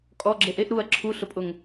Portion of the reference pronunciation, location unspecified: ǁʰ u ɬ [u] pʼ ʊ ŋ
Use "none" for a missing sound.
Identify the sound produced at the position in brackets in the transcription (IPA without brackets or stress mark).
ʊ